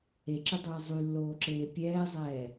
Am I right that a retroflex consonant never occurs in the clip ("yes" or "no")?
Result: yes